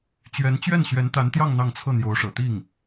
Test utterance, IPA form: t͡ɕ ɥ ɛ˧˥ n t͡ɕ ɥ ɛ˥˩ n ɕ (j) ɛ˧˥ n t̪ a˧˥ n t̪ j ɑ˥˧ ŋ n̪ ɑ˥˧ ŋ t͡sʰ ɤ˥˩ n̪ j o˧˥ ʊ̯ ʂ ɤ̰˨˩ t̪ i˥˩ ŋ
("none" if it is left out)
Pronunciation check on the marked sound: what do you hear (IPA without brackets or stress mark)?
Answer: ɥ